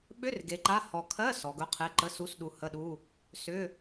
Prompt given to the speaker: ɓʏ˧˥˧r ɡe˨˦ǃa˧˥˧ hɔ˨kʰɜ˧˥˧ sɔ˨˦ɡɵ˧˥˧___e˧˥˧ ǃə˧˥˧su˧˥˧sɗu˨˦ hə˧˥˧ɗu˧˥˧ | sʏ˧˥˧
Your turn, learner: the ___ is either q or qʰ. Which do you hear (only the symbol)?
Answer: qʰ